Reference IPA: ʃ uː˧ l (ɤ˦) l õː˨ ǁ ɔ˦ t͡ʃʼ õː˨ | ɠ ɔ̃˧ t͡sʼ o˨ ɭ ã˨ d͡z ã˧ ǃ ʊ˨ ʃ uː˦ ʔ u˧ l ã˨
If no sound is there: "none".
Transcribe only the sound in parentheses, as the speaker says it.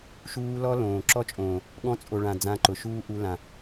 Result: ɔ˦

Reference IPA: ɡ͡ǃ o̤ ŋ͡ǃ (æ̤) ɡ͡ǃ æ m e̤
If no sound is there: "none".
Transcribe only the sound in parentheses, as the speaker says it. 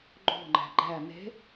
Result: æ̤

